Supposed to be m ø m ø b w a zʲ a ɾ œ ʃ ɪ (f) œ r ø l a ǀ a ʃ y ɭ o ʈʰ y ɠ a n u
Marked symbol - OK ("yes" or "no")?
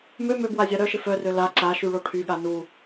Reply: yes